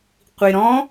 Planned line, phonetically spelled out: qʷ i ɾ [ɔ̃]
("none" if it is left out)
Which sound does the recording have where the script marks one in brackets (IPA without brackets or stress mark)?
ɔ̃